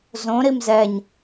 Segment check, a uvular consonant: absent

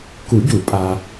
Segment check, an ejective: present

